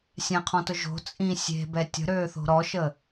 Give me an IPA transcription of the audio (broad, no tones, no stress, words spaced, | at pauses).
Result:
sʲɛ̃qʰɔ̃tʊ ʒo̤ t͡sʼĩ sʲe̤bɛ tʲə̤ɾøːθo̤ ɾɔʃə